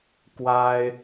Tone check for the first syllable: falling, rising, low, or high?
high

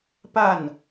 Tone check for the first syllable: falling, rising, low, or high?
falling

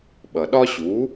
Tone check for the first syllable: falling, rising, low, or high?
low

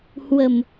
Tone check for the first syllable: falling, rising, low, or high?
low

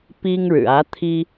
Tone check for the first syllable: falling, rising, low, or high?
high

